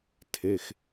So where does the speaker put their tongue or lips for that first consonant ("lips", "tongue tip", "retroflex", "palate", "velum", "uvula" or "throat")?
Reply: tongue tip